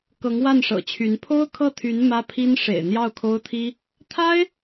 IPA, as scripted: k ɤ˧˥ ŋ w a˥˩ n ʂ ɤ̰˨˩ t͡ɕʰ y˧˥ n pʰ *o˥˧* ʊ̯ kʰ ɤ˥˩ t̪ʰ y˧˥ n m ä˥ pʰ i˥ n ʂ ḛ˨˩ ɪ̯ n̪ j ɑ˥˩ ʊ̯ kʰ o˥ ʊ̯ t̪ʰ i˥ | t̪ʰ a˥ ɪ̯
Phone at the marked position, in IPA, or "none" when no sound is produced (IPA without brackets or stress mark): o˥